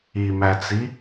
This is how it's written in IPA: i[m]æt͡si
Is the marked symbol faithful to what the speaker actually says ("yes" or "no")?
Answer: yes